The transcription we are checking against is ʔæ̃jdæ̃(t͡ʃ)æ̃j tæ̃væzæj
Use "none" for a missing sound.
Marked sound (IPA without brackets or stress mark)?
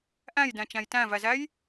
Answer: t͡ʃ